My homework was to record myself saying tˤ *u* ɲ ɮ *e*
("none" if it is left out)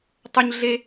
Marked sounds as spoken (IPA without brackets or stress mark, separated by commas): u, e